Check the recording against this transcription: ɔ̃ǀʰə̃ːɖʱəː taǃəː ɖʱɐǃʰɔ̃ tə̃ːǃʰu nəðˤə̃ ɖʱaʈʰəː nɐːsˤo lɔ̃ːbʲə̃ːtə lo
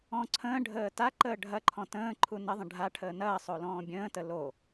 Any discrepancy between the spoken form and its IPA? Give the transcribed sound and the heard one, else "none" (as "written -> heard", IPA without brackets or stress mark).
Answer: none